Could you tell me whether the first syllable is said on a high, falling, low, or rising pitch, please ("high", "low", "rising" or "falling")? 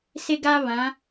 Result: high